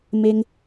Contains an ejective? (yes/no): no